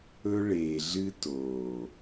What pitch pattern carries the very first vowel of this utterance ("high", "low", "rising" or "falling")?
high